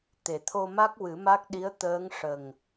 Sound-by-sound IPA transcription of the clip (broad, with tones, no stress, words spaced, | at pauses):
t̪e˨˩t̪ʰo˧ma˦˥k̚ wɨ˨˩˦ma˦˥k̚ɗi˧˥ə̯ t̪əː˧˥ŋ ʂə˨˩ŋ